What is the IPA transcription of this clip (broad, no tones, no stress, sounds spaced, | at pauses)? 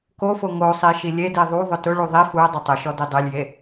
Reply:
k o f o ŋ o sˤ i ʃ i lʲ e d i ðˤ u ðˤ ʊ t ʊ ɭ u ðˤ i f u ə̯ dˤ u tˤ ʊ ʃ ɔ d i dˤ e lʲ j e